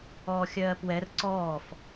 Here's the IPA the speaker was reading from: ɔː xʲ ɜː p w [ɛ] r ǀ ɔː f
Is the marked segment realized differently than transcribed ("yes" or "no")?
no